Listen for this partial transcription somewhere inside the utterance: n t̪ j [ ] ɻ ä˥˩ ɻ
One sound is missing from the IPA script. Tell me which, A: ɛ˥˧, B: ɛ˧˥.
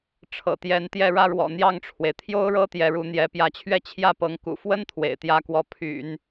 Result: A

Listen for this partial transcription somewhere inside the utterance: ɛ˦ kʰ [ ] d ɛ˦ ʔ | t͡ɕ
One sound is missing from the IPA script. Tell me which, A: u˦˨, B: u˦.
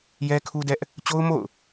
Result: B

